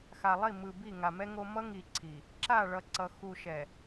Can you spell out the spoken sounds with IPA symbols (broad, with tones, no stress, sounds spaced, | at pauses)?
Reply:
x a˨ lˠ i˦˨ m ɯ˨ b i˦˨ ŋ a˨ m ɛ˦ ŋ o˦ m ʌ˦ ŋ i˨ ǀʰ i˨ | ǁ a˦˨ ɭ ʌ˨ ǀ ʌ˨ x u˨ ʃ ɛ˨